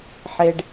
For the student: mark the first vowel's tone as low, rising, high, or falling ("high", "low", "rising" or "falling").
low